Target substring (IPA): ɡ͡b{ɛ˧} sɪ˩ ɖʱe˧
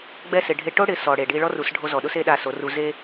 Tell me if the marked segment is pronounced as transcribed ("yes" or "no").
no